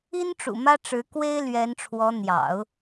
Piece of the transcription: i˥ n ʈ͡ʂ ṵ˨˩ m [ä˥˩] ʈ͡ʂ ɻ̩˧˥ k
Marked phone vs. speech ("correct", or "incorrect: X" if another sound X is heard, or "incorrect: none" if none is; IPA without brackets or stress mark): incorrect: ä˥